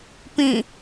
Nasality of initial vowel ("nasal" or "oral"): nasal